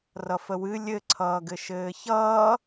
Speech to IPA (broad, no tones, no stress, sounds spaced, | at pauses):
r ʌ f ə w ɨ lʲ ɘ ǀʰ ʌː ɡ ɘ ʃ ɘː ç ʌː